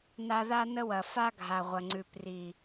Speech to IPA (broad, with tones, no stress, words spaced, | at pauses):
na˦ ða˦nə˦wɐ˨ fa˦ɡʱa˨ʁʷɐ˨ŋ͡ǀʉ˨p ri˨